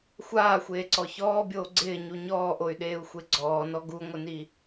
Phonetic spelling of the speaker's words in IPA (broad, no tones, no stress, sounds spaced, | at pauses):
xʷ aː xʷ eː ǀ ɔ ç ɔː bʲ oː ɡ͡ǀ ɪː ɲ u ɲ ɔː ʔ o y̯ ɗ eː u̯ xʷ e ɡ͡ǀ ɔː n ɔ ɡ u ŋʷ ɪ n i